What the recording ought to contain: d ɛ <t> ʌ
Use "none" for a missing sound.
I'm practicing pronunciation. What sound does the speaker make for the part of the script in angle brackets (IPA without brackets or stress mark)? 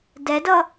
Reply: d